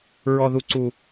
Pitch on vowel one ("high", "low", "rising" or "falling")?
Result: low